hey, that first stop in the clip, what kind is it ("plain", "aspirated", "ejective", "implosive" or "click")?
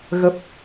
plain